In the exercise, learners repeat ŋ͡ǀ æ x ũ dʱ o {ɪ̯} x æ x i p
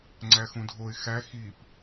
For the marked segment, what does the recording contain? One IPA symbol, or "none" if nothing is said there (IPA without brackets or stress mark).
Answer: ɪ̯